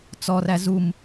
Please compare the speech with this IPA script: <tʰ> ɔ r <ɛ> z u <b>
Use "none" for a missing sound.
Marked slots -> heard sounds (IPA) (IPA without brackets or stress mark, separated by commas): t͡s, æ, m